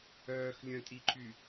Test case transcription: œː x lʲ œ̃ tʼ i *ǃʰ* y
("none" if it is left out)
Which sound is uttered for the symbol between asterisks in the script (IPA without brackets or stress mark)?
ǃʰ